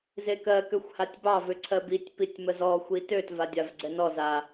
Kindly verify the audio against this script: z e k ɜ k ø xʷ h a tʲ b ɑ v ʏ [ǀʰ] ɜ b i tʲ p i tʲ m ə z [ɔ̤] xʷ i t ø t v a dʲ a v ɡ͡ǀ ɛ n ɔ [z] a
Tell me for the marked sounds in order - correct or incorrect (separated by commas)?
correct, incorrect, correct